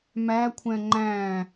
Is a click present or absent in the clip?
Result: present